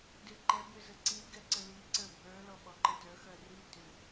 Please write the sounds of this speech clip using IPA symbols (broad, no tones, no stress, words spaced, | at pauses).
dʏǃɛ bʏzəǀi ɡɛǀəli ǀə˞bʱə˞ lɔɓɔǃətœ xœri tʏ